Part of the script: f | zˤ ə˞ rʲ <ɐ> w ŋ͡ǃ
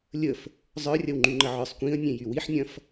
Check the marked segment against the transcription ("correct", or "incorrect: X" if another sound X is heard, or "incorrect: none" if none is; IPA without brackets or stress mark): correct